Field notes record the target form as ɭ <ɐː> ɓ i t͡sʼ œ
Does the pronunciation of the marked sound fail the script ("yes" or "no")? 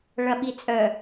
yes